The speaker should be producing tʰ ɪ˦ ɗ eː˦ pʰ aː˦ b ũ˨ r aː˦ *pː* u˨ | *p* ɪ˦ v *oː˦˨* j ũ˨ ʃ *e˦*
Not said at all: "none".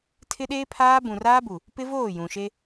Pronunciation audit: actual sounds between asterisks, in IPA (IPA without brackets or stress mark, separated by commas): b, p, oː˦˨, e˦